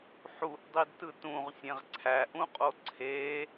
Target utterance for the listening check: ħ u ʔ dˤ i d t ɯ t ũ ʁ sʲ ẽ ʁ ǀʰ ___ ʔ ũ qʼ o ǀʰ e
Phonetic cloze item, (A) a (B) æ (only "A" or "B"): B